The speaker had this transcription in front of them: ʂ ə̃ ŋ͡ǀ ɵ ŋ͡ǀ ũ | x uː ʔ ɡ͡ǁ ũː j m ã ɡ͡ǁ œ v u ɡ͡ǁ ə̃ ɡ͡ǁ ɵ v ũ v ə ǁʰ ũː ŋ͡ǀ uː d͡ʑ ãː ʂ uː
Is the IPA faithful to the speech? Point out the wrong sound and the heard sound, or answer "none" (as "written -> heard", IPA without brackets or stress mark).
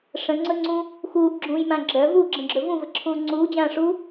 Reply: none